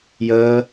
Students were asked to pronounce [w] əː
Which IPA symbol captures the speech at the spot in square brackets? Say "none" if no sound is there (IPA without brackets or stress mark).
j